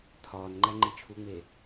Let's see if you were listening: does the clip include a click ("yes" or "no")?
yes